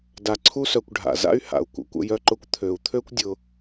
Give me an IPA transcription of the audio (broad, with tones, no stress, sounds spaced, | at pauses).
d a˧ ǀʰ u˦ s œ˧ kʷ ɖʱ a̰˨ z a̰˦ y̯ h a̰˨ u̯ kʷ ə̰˨ kʷ ə̰˦ j œ˦ ǃ ʊ˦ kʷ t̪ʰ ø˨ u̯ t̪ʰ ø˦ kʷ dʲ ʊ˧